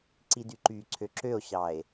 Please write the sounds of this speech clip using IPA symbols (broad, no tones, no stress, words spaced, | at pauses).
ǀidyǃyǀʰø ǁøo̯ɕɑe̯